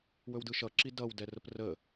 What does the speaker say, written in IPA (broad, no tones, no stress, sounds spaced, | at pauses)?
w ɵ w d ɯ ʃ ʌ ǁ i d ʌ w d ɛ r ə p r ə